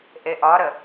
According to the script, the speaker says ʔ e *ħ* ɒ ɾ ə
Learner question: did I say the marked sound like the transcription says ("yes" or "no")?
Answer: no